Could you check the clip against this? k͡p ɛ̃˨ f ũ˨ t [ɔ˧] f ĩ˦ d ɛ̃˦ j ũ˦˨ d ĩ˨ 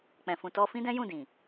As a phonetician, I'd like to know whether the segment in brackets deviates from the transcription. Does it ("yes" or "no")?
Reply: no